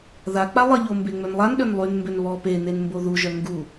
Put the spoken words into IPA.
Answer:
ðak͡pa lˠəʎo mbeŋ͡mønlˠan ɗønlˠynmbøn βɔ penen mboðuʒœ ŋɡu

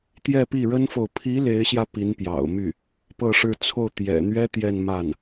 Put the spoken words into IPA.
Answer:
t̪jɛ˥˧pi˥˩ ɻə˥nfo˨ʊ̯ pʰi˧˥ le˧˥ɪ̯ɕjä˧ pi˧˥npjɑ̰˨˩ʊ̯my˥˩ | pɤ˥˧ʂɻ̩˥˧ t͡sʰo˥˩ʊ̯t̪jɛ̰˨˩ n̪ɥɛ˥ t̪jɛ˥˧nma˥˩n

